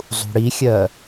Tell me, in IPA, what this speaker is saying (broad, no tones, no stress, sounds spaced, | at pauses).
zˤ ṳ ɽ i xʲ ɜ